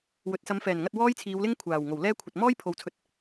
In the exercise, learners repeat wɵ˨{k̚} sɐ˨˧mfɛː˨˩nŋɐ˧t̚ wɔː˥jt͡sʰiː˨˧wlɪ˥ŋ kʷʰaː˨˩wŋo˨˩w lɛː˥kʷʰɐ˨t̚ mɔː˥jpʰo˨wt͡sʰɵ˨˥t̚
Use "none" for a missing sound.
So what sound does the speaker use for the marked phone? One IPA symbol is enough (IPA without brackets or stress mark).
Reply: t̚